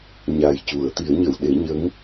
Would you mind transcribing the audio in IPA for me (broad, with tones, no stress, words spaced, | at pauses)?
ɲa˨˩jcu˨˩˨ə̯ t̪i˨˩˦ə̯ɲə˨˩˨wɗe˨˩˦ ɲə˧˥ŋ